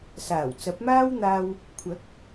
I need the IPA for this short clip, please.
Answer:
saː˨˩wt͡sɐ˨˥p̚maː˥wn̪aː˧w | kʷʰɐ˨˥k̚

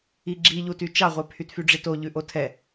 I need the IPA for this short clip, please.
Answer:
iɡ͡ǁiʎuty t͡ʃɑʁʷɛ pʰytfyɖ͡ʐito ʎʉʔotʰɛ

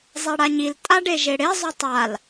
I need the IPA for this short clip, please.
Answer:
zˤeɽaɲil tʼaɖeʒeɽe zˤytˤal

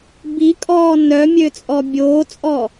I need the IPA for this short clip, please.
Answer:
bikʼɔː nœmʲøt͡sʼɔ bʲoːt͡sʼɔ

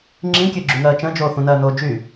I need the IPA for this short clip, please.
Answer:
ŋ͡ǁĩkʲøɡ͡ǁyŋɜː t͡ʃə̃ːd͡ʒoː θũnɜːnoː d͡ʒy

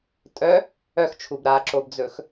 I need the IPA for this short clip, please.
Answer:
tʼœ | œxt͡ʃʰub ɾaǁobd͡zɵx

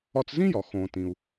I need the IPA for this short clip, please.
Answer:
ɒ˧t͡szĩ˥jɒ˩ xõː˩ tĩ˩u̯

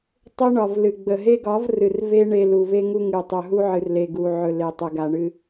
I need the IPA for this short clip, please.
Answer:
tˤɵ˦ɳɒ˨vlɨ˨ ɡ͡bə˨ɦe˦ɡɒ˨˦vrɨ˨r ve˦ ɳe˧lu˨ve˦ ŋu˧ ŋɨ˨tˤɵ˨ ɦu˦ʕɨ˨rle˨ ɡu˨ʕɵ˨ le˨tˤə˨ ɡa˨ɳɨ˧

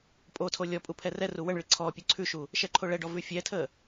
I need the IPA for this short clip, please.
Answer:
pʼotʰo lʲɔ pʼupʰɛrɛru wəɳɭi ǀʰɔ pʲʉǀʰʉʃu | ʃɛǃʰoɭɛɖɔ vʉfʲɛtʰə

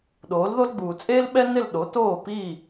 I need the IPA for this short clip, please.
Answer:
ɗoː˩˥lðo˥l ɡ͡buː˩t͡sʼeː˥lɓɛ˥ nɪ˥˩l ɗo˩˥toː˥˩piː˥˩

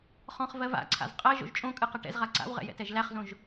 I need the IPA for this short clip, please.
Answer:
χɔ̃χvɜ va̰ǀʰa̰z qʼɜ ʒo̰ʒt͡ʃʼõkʼɨ qɛʈɛ̰zʁa ǀa̰wʁɛ̰ jɛ̰tɛʒlæχzõʒ

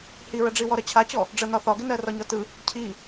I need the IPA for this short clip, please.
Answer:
hiɹəɖ͡ʐiwɔ ɾɜt͡ɕʰat͡ɕɔ | ɖ͡ʐənɒ θɒɡɪnɜ rɒɲɒtɯ | cʰi

